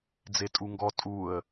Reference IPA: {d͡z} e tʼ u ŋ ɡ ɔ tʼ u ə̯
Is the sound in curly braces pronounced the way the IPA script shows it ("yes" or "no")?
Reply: yes